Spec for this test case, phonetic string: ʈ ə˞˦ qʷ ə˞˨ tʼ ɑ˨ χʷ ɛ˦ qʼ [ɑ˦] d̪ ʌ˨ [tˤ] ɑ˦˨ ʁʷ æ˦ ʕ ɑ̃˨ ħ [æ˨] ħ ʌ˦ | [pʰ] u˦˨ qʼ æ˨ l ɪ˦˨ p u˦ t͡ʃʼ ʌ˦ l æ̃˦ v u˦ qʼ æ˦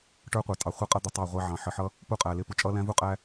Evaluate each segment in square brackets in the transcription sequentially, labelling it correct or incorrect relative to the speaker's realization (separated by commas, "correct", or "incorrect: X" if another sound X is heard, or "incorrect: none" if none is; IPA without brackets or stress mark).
incorrect: ʌ˦, correct, incorrect: ə˨, incorrect: p